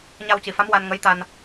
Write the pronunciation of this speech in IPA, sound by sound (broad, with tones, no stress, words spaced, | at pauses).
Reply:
ɲa˧wci˨˩fa˧˥m wa˧nŋə˧˥jt̪a˧n